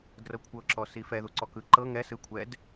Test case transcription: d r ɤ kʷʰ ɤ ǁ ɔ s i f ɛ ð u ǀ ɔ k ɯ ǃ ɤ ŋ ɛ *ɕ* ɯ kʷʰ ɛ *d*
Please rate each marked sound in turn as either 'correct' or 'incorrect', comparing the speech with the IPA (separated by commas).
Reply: incorrect, correct